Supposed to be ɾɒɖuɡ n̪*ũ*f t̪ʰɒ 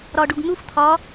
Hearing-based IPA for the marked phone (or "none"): u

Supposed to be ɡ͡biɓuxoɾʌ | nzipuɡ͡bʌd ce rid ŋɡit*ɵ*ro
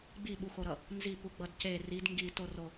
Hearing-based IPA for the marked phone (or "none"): o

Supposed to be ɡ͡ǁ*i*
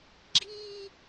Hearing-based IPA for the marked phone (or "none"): i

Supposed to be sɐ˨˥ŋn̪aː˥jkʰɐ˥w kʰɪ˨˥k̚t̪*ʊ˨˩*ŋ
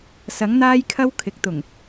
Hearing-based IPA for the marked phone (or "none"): ʊ˨˩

